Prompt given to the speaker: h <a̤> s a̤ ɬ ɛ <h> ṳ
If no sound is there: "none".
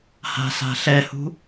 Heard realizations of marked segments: a̤, h

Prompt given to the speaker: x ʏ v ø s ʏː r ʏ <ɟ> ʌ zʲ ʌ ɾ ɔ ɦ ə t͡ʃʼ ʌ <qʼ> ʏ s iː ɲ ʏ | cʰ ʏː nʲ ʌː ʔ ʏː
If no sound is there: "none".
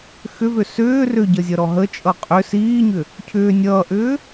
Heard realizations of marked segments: ɟ, qʼ

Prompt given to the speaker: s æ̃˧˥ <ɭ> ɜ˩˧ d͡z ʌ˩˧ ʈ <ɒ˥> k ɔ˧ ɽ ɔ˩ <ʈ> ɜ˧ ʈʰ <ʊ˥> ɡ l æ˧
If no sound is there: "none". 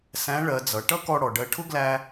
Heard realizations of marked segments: ɭ, ʌ˥, ɖ, ʊ˥

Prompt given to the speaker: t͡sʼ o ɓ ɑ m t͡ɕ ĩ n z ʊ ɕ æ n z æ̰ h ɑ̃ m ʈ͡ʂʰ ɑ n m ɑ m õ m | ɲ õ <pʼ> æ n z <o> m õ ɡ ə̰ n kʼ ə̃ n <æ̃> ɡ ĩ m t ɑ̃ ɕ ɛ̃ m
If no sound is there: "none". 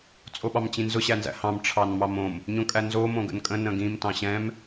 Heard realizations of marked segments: kʼ, o, ə̃

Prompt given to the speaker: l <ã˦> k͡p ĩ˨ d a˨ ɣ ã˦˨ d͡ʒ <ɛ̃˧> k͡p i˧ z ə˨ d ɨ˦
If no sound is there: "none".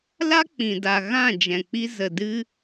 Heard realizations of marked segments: a˦, ɛ̃˨

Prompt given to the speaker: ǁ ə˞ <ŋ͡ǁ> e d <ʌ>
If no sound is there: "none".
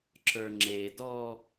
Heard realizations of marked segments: ŋ͡ǁ, ɔ

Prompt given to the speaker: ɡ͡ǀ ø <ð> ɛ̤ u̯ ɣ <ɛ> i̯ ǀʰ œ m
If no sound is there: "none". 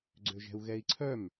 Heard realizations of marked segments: ʒ, ɛ

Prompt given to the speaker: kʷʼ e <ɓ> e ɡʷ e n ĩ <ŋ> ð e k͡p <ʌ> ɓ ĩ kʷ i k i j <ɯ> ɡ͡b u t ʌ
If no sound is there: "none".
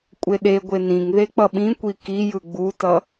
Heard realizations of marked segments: ɗ, ŋ, ʌ, ɯ

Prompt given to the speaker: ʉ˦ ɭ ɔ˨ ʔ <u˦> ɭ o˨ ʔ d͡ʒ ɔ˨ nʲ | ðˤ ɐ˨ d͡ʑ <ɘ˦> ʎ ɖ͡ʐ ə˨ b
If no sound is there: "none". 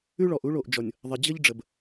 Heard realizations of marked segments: u˦, ɘ˦

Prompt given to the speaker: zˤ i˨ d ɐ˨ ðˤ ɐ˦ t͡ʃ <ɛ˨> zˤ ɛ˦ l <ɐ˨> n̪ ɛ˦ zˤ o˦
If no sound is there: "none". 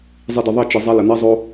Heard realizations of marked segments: ɨ˨, ɐ˨

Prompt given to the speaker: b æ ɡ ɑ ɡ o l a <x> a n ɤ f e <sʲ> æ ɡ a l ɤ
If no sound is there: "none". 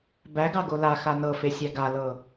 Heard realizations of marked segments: x, sʲ

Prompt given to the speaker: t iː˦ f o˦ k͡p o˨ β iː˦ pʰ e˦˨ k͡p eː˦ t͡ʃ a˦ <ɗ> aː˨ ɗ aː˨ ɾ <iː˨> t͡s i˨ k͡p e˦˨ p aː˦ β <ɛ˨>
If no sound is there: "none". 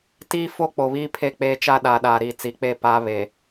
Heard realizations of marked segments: ɗ, iː˨, e˨

